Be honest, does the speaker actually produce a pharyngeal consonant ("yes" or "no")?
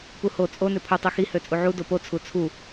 yes